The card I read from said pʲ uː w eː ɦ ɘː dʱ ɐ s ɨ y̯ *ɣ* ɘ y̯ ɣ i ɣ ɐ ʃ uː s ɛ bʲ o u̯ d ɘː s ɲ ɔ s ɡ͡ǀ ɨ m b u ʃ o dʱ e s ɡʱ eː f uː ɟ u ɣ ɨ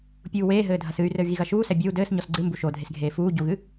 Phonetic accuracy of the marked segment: incorrect: r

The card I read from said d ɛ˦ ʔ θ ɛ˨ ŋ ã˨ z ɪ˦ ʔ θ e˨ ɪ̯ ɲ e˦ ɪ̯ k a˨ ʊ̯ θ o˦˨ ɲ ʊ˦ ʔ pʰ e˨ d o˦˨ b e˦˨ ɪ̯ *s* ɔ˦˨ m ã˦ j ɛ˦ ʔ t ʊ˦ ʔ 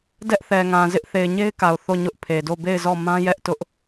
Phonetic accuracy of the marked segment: incorrect: z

